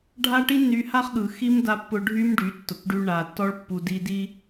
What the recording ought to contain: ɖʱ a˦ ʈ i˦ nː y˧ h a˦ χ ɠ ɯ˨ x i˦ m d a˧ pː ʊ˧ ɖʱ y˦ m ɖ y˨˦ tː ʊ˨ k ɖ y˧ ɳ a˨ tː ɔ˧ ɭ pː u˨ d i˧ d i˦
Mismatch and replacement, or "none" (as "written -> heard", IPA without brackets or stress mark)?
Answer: none